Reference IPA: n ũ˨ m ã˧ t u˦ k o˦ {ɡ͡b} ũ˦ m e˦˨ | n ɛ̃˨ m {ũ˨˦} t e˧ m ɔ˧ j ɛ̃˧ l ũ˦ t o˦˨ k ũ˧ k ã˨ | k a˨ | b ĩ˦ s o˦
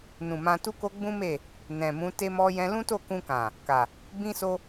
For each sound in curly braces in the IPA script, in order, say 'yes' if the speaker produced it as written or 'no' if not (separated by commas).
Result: yes, yes